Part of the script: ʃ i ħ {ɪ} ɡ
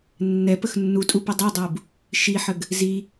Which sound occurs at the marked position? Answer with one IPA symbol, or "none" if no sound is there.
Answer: ə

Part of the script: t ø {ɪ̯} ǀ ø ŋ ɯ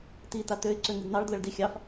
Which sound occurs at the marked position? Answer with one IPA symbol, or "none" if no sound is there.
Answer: ɪ̯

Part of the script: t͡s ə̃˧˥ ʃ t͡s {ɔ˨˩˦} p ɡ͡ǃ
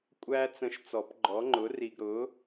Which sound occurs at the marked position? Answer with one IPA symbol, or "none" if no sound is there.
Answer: ɔ˨˩˦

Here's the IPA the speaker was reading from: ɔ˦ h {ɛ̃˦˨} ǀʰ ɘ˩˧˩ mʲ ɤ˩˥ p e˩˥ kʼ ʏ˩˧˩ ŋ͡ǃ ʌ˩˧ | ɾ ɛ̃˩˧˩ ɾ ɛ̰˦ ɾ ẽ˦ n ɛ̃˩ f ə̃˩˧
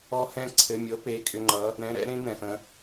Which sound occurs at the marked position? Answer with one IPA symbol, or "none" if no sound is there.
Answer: ɛ̃˦˨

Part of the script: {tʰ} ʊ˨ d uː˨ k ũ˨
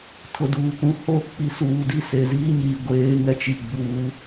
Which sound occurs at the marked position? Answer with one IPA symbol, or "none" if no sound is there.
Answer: tʰ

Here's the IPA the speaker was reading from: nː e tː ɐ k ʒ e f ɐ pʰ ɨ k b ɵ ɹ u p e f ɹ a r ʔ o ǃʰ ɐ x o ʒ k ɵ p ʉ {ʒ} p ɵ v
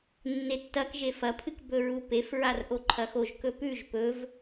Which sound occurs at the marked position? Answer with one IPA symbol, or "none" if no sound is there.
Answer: ʒ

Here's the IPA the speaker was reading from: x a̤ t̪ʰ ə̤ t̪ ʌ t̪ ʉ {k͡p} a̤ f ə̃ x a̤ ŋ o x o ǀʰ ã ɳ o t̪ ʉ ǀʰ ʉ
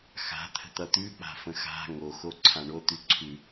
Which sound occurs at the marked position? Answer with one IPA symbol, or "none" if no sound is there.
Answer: k͡p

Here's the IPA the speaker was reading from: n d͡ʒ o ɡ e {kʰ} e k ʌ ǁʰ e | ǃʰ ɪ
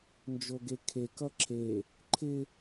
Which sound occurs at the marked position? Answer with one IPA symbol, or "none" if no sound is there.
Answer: kʰ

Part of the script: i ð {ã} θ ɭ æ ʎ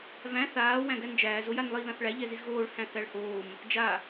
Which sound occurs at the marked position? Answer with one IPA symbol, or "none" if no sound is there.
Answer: ã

